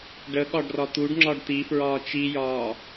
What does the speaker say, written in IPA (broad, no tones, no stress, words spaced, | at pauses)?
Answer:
ɖə ɠɒɖrɒt̪uɖ ŋ͡ǁɒɖt̪ifɹɒː t͡ʃijɒː